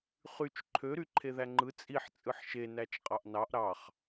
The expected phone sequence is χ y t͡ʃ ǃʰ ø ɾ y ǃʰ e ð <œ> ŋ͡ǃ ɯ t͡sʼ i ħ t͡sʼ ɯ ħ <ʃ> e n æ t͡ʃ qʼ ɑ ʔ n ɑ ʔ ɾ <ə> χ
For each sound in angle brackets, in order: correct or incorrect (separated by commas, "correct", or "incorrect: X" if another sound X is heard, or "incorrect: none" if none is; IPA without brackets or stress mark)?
incorrect: æ, correct, incorrect: ɑ